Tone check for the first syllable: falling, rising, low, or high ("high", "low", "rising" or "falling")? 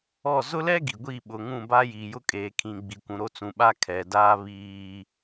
falling